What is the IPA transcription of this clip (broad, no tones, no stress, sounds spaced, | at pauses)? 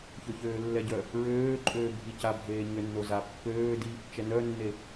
ç ø ç øː lː ɛ ɟ œ | ɹ øː ǃʼ øː bʱ i c a bʱ eː ɲ ø nː o z a pː øː d i | t͡ʃ ɛ n œ nː e